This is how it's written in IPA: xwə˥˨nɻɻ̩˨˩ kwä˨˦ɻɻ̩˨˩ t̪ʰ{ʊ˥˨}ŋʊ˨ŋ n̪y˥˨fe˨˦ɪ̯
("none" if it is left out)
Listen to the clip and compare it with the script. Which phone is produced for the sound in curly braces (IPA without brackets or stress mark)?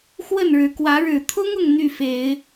ʊ˦